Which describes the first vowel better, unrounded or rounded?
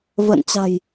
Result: unrounded